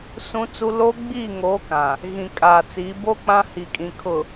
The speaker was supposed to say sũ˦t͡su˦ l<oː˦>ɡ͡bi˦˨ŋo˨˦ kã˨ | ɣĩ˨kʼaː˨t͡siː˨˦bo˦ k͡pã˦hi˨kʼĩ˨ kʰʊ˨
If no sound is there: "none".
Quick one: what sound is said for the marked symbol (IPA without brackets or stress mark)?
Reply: o˦